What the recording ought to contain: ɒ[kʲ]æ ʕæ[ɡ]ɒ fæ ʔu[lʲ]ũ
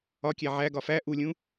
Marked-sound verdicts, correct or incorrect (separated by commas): correct, correct, correct